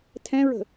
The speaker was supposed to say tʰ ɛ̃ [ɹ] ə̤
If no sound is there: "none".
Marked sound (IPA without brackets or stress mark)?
ɹ